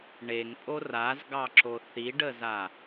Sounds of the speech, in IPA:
ɳ e ŋ pʼ o r a z ɡ ɑ ǁ o θ i ɖ ə z a

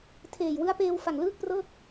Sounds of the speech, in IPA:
tʰ eː˨˩ j w ɯ˦˥ a̯ p eː˧ w f a˨˩ ŋ l ɯː˥˩ k̚ p r ɤː˥˩ k̚

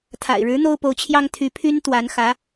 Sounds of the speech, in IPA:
t̪ʰ a̰˨˩ ɪ̯ ɻ ɻ̩˧˥ n̪ o˥ ʊ̯ p o˧˥ ʊ̯ t͡ɕʰ j ɑ˥ ŋ t̪ʰ y˧˥ pʰ y˥ n t̪ w a˧˥ n x ä˧˥

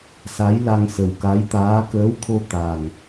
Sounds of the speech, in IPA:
s a˧˥ j l a˧ ŋ s ə˨˩ w k a˧˥ j t̪ aː˧˥ k əː˧˥ w t̪ʰ o˧ t̪ a˨˩ ŋ

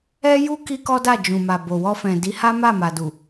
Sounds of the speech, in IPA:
ɛ˦ j u˦ k i˦ k ɔ˦ d a˦˨ d͡ʒ ũ˨ m a˨ b o˨ w ɔ˧ f ɛ̃˨ d i˨˦ h a˦ m a˦˨ m a˨ d u˨

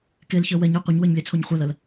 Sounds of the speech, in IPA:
k e l ç ə˞ w ɛ ɲ e qʷ ɐ ɲ w ə˞ ɲ lʲ ɛ t͡sʰ o ɲ χʷ ɛ l ɐ l

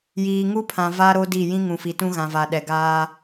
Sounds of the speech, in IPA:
j iː˨ ŋ u˦ pʰ ã˨ v a˦ ɾ o˦ d i˦˨ j ĩ˦ ŋ ũ˨ f i˨ t ũ˦ ɣ ã˨ v a˨ ɗ ɛ˨ ɡ aː˦

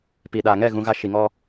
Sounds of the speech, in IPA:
p i˨ ɗ a˨ ŋ ɛ˦˨ ɣ ũ˦ ɣ a˦ ʃ i˨ ŋ ɔ˦

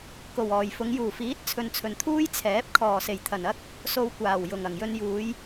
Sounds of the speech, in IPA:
k o˨˩ w ɔː˨˩ j f ʊ˨˧ ŋ j uː˨˩ f iː˨˥ t̚ t͡sʰ ɵ˨ n t͡sʰ ɵ˨˩ n t̪ʰ uː˥ j t͡sʰ ɛː˨˥ p̚ kʰ ɔː˨˩ s e˨˩ j t̪ʰ ɐ˨˩ n ɐ˥ k̚ | s o˧ w kʷ aː˨˩ w j ʊ˨˩ ŋ ɐ˨˩ ŋ j ɵ˧ n j uː˨˧ j

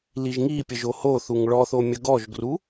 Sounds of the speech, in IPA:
l i ʒ ŋ i pʲ ə ʒ o h o θ u ŋ ɭ ɔ θ o mʲ ə ɡ ɔ ʒ ɡ r u

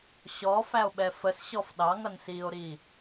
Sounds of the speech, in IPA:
ɕ ɔ f æ o̯ ɓ ɛ f ə s ɕ ɔ f ɗ ɑ ŋ ʌ n s iː o̯ ɾ iː

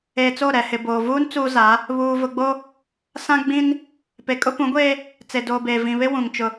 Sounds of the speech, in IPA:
eː˨ t͡s o˦˨ ɾ ɛ˨ h ɪ˨ b oː˨ v uː˦ n t͡s uː˦ z a˨˦ | β uː˨ v ʊ˨ ɡ͡b o˦ | s ã˦ ɡ͡b ĩ˦ n | p e˨ kʼ ʊ˦ p ũ˨˦ ɡʷ eː˦ | t͡s e˨ d oː˨ b eː˨ v ĩ˨ β ɪ˦ w ũ˨ ŋ t͡ʃ ʊ˨

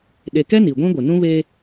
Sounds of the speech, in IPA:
ɗ e˨ k ɛ˦ n i˨ ɡʷ ĩ˦ ɡʷ ɪ˨ n ũ˦ β e˦

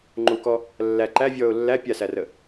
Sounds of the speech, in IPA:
ŋ͡ǃ u k ɔ | lː æ ǃ æ vʲ ɔː ʊ̯ lː æ pʲ a s æ r ə

